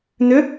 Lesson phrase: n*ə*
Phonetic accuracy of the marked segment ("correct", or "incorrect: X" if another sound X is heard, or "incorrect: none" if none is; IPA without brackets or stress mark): incorrect: ʏ